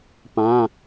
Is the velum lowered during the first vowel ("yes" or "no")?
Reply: yes